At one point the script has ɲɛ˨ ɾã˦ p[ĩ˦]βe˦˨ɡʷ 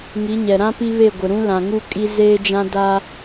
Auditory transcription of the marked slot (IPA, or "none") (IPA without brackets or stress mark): i˦